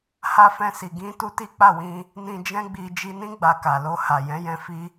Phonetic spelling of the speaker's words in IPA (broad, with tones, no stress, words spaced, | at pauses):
ha˧fɛ̃˧si˨ ɡĩ˧ tu˧ti˦k͡pa˦˨wĩ˧ | nĩ˧d͡ʒɛ̃˦ɡ͡bi˧ d͡ʒi˧nĩ˦ ɡ͡ba˧ka˨ lo˧ha˨ jɛ̃˨˦jɛ̃˧fi˦